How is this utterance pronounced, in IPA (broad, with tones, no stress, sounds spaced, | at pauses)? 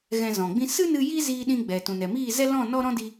ɣ ɛ̃˧ z ɔ̃˨ ɡ͡b ĩ˦ s ɨ˦ n ɨ˧ j i˦ z iː˧ ɗ ĩ˧ ɡ͡b ɛ˨ t ũ˨ n ɛ˨ m iː˦˨ z ɛ˦ l ɔ̃˦˨ n ɔ˦ ɾ ɔ̃˦ d i˧